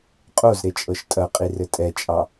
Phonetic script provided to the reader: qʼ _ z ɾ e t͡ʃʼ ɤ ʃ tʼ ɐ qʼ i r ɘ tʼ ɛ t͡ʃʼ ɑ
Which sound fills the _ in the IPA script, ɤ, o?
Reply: o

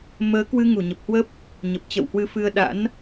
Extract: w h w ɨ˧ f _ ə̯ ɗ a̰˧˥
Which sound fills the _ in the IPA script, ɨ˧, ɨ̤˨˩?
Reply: ɨ˧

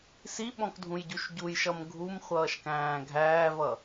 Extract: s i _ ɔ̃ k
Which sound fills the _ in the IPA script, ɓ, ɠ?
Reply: ɓ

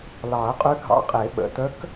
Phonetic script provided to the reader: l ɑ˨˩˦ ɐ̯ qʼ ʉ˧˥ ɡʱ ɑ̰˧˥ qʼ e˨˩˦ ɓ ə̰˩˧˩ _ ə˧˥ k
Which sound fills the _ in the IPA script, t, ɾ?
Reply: t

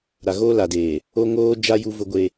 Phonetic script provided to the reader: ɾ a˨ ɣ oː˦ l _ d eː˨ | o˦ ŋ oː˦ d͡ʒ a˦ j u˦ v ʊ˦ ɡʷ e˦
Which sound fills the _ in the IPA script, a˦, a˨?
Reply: a˨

